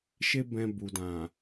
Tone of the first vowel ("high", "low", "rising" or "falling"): high